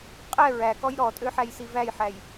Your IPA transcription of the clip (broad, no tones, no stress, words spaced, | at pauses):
qʼɛ ɹækɔj ɾɔtʼøħæj sivæjħæj